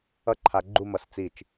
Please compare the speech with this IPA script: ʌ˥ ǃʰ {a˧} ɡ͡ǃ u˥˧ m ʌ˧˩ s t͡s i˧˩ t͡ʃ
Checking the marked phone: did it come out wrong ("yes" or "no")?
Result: no